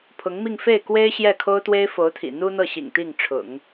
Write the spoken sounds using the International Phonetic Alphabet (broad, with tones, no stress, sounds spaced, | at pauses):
pʰ ʊ˧˥ ŋ m i˥˧ ŋ f e˥˩ ɪ̯ k w e˥ ɪ̯ ɕ j ɛ˥˩ kʰ o˥ ʊ̯ t̪ w e˥ ɪ̯ f o˧˥ ʊ̯ t̪ʰ ḭ˨˩ n̪ u˥ n̪ ɤ˥˩ ɕ ḭ˨˩ ŋ t̪ i˥˩ ŋ ʈ͡ʂʰ ʊ̰˨˩˦ ŋ